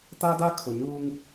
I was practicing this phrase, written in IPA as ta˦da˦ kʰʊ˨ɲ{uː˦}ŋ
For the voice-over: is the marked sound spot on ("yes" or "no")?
yes